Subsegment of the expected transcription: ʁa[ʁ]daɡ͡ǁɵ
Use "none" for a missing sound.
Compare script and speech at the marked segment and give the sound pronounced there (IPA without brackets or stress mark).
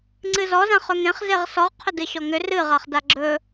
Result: χ